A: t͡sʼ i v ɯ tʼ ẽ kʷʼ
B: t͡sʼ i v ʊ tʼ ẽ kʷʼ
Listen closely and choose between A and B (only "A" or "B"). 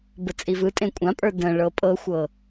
A